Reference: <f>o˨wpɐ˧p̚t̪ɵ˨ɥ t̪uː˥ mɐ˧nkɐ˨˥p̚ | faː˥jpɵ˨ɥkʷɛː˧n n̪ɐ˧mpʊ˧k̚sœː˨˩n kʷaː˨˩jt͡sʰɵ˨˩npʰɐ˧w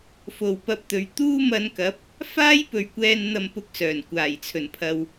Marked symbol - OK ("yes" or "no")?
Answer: yes